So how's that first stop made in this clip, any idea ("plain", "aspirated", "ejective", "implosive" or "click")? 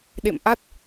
implosive